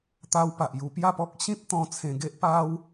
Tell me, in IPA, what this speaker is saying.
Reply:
t̪ a˧ w p a˨ ʔ j u˧ p j a˥˧ p ɔ˦ k̚ ɕ ĩ˦ p̚ t̪ ɔ̃˧ t͡sʰ ẽ˧ ɡ e˦ ʔ p a˦ w

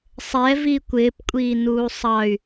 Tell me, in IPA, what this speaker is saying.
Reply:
sˤ ɛ v i kʷ ɪː p kʷʼ iː n uː sˤ ɑ y̯

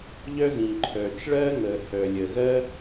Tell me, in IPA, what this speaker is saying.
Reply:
ʎ œ˥ z ĩ˩ ǃʰ œ˩ t͡ʃ ɭ ɜ˥ ŋ əː˩ h œ˩ lʲ ə˩ ɣ ɜ˥

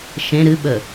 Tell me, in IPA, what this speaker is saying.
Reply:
ʃ ẽ ɾ ɨ ɓ ə

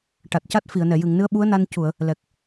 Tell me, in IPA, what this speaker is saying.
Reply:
ʈ a˨˩ t̚ c a˦˥ t̚ f i˨˩˨ ə̯ n ɛ˨˩˨ j ɨ˨˩˨ ŋ n ɨ˧˥ ə̯ ɓ u˧˥ ə̯ n a˧ n c u˨˩˨ ə̯ | l ɛ˨˩ k̚

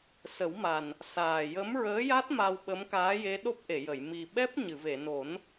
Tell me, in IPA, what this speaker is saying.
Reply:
s ə˨˩˦ w m a˨˩ n | s aː˨˩ j ə˧˥ m ɹ əː˧˥ j a˦˥ t̚ m a˧ w ɓ ə˧˥ m k aː˧˥ j e˧˥ ɗ o˦˥ p̚ ʔ e˨˩˨ j ə˨˩˨ j m i˨˩ ɓ ɛ˦˥ p̚ ɲ ɨ˨˩˨ v e˨˩˨ n o˨˩˦ n

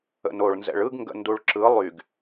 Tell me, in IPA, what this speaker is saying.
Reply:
ə̰ n o ɭ n z ɛ̰ ɭ ɯ ɡ ŋ ɡ ə̰ n d u ɭ ǁ ɯ lˠ y ɡ

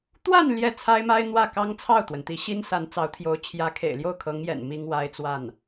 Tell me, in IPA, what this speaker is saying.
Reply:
t̪ w a˥˧ n l j ɛ˥˩ t͡sʰ a˥ ɪ̯ m a˥ ɪ̯ n̪ w ä˥˩ k ɑ˥ ŋ t͡sʰ ɑ˥˩ ʊ̯ t̪ w ə˩ n t̪ i˧˥ ɕ i˥ n s a˧˥ n t͡s ɑ˧˥ ʊ̯ t̪ʰ j o˧˥ ʊ̯ t͡ɕʰ j ä˧˥ kʰ ḛ˨˩ ɪ̯ l j o˥˩ ʊ̯ kʰ ɤ˧˥ ŋ j ɛ̰˨˩ n m i˥ ŋ w a˥ ɪ̯ t͡s w a˥˩ n

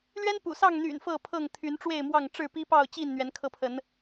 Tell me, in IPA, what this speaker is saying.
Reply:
l ɥ ɛ˦ n p ṵ˨˩ s ɑ˥˨ ŋ n̪ y̰˨˩ n f ɤ˥˨ pʰ ɤ˥˨ ŋ t̪ʰ y˨˦ n ʈ͡ʂ w e˥˨ ɪ̯ m w ɑ˥˨ ŋ ʈ͡ʂ ɻ̩˥˨ p i˦ p ɑ˥˨ ʊ̯ t͡ɕ i˥˨ n n̪ ɥ ɛ˨˦ n kʰ ɤ˧ pʰ ə˨˦ n

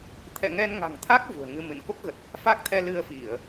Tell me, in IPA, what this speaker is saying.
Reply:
t̪ʰ ɛ̰˧˨ ŋ ɛ˧ n ŋ a̤˨˩ ŋ t̪ʰ a˦˥ k̚ v ṳ˨˩ ə̯ ŋ ɨ˧ m ɨ̰˧˨ n k o˦˥ k̚ ɣ ə˨˩ t̚ | f a˦˥ k̚ t̪ʰ ɛ˧ l ɨ˧ ə̯ f i˧˩˨ ə̯

